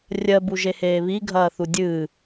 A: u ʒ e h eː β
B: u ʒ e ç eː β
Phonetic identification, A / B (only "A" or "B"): A